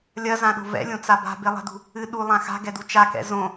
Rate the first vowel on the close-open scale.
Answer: open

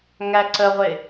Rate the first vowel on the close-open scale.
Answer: open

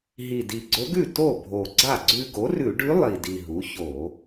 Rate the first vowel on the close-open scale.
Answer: close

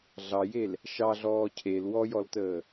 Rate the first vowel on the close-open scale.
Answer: open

